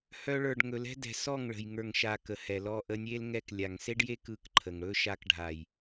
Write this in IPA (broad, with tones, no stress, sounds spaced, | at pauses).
h œ˦ ɭ ə˞˧ ɖ ŋ ɵ˨ l ɛ̤˦ d ɛ̤˨ s ɔ˦˨ ŋ ɭ ə̤˨ j ŋ ə˞˨ ŋ ʃ a˧ k ə˨ h ɛ˨ l ɔ˧ ʔ ə˧ nʲ e˦ l ŋ ɛ˧ k lʲ a˨ ŋ s e˦ ɖ j e˦ k ɯ˧ k ǃʰ ə˨ ŋ ɽ ɵ˦ ʃ a˧ k ɖʱ a˨ j